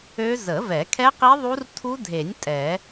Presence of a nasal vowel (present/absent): absent